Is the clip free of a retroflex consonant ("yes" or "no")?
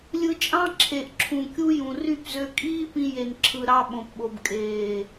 yes